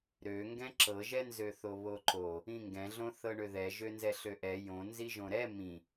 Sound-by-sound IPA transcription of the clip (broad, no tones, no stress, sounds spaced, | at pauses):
ɾ ø ŋ ɡ ɛ̃ ǁ ɤ ʒ ɛ n z ø θ o β o ǃ o | ĩ ŋ ɡ ɛ̃ ɮ õ θ ɤ ɳ ø ð ɛ ʒ ø n z ɛ ɬ ø ʔ ɛ j õ n z i ʒ õ ɾ ɛ m ĩ